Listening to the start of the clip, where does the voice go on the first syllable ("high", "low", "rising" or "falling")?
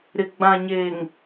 low